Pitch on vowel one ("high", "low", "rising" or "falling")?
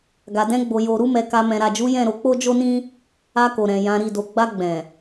low